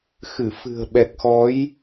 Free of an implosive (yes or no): no